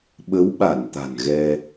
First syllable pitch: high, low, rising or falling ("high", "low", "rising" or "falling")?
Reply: rising